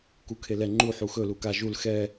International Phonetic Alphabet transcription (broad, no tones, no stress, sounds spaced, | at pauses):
k u kʰ e l ɛ ŋ͡ǃ u ħ u x ɵ l u k a ʒ u l x ɛ